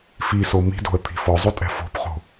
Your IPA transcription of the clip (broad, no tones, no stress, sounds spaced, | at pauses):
f i s o m i̤ d o̤ ə̯ t̪ʰ i̤ f ɔ zˤ o tʼ ɛ̤ f o̤ p χ o̤